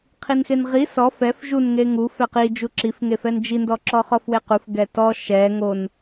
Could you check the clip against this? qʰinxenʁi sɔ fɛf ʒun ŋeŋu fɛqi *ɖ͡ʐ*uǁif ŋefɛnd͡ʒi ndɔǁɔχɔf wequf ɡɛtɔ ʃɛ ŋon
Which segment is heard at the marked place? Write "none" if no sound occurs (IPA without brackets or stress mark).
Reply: d͡ʒ